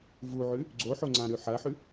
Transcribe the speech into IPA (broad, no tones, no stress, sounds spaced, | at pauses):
v u ʕ ʉ | ɡ͡ǀ o ħ o ŋ͡ǀ ã ɾ ʉ ħ ɐ ħ ʉ